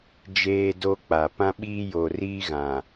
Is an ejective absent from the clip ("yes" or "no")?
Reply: yes